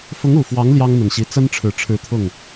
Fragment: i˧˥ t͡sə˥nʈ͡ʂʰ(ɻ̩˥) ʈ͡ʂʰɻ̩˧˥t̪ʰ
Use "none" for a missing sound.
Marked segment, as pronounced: ɻ̩˨˩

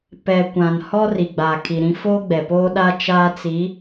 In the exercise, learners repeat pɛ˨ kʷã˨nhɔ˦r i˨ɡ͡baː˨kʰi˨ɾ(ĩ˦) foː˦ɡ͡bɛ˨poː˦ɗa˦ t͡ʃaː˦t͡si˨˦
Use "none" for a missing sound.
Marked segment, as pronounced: ĩ˦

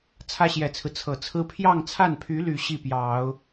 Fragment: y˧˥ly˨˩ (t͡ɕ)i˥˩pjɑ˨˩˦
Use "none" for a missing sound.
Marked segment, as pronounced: ɕ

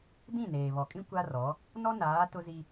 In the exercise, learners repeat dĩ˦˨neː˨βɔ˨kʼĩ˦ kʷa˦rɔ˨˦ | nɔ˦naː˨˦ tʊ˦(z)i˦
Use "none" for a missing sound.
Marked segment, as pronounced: z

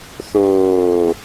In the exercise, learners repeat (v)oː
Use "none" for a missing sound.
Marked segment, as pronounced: θ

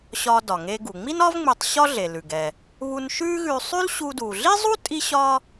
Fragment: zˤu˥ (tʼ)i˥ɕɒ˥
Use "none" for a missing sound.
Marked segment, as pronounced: tʼ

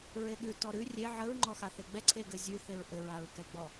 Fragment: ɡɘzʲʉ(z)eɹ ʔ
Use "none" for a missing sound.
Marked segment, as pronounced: θ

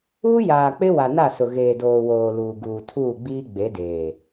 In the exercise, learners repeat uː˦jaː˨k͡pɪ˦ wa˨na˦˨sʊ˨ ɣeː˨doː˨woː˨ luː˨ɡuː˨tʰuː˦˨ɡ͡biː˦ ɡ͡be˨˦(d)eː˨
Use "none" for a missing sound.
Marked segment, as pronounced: d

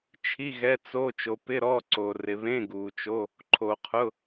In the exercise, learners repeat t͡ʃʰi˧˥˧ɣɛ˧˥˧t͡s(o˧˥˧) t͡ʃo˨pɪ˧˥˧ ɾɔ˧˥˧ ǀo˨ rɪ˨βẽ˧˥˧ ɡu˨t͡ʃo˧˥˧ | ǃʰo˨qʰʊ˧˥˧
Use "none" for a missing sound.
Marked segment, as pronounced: o˧˥˧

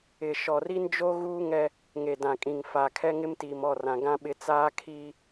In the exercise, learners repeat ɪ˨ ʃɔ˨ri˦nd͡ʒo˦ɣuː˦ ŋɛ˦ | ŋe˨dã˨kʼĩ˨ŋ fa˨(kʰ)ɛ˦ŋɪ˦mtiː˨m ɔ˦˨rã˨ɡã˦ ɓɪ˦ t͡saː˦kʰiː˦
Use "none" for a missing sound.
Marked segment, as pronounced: kʰ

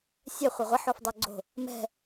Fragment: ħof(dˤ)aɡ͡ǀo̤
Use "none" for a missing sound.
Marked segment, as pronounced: dˤ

